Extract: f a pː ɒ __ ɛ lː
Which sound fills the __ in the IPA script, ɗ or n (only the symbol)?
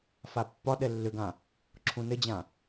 ɗ